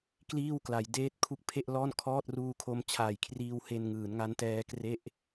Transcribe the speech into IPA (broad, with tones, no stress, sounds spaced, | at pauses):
k l iː˥˩ w k l a˩˦ j d eː˥˩ t̚ kʰ u˦˥ k̚ pʰ e˥˩ ʔ l ɔː˥˩ n kʰ ɔː˥˩ t̚ r uː˧ kʰ o˧ m t͡ɕʰ aː˨˩ j kʰ r iː˧ w h e˧ n ŋ ɯː˩˦ n ŋ a˦˥ n t ɛː˦˥ k r e˥˩ ʔ